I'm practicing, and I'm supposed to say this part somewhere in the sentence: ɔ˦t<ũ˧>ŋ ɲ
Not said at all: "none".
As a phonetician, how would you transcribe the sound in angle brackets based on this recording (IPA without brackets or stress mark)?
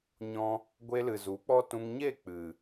ũ˧